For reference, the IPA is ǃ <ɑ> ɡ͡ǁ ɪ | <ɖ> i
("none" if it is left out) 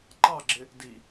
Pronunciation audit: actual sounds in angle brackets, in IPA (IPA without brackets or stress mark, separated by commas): ɑ, d